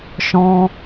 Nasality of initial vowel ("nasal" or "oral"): nasal